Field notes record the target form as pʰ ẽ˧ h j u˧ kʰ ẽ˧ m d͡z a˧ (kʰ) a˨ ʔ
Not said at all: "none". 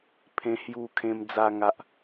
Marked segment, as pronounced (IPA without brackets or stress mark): ŋ